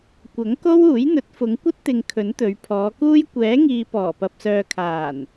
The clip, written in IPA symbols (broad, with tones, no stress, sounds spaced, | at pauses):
kʷ ɐ˨˥ ŋ k o˥ w uː˨˥ j n̪ ɵ˨˥ t̚ f ʊ˨˧ ŋ kʷ ɐ˥ t̚ t̪ ɪ˨ ŋ kʰ ɵ˨˥ n t̪ ɵ˨˧ ɥ pʰ ɔː˨˧ k uː˥ j kʷ ɛː˨˥ ŋ iː˨ p ɔː˨˩ p ɐ˨ p̚ s œː˨ kʰ aː˨˩ n